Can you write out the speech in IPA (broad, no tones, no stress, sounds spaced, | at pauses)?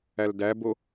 æ l d æ b o